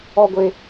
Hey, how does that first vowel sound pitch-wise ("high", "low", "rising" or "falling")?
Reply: low